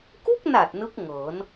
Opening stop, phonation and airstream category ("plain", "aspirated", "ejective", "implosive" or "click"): plain